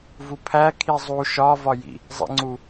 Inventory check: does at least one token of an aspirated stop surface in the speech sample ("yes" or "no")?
yes